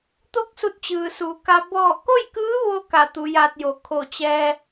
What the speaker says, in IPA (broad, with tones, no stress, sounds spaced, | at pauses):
t̪ o˥˨ k̚ s u˧ t̚ t͡ɕ ɯː˩ s u˩ k a˧ b ɔː˧˩ k o˥˨ j k ɯː˧˥ ʋ o˧ k a˧˩ t̪ u˩˧ j aː˧ t̚ j o˩˧ kʰ o˧˩ t͡ɕ ɛː˧